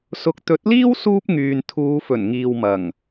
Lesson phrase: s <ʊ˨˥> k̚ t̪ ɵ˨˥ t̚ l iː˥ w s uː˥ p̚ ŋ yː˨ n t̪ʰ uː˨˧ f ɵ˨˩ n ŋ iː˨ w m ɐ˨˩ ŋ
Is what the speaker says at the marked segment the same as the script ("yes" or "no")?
no